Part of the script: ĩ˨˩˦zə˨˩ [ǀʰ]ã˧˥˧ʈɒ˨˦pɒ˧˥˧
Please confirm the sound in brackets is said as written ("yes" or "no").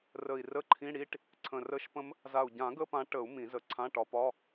yes